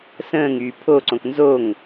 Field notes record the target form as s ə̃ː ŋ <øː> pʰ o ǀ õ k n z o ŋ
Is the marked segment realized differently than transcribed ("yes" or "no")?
yes